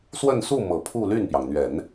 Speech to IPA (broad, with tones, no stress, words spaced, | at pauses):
swə˥˧nsu˥˩ mɤ˨˩pʰu˥˧ ly˥˩npjɑ˩ŋn̪ɥɛ˨˩˦n